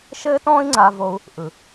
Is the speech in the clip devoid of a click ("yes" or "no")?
no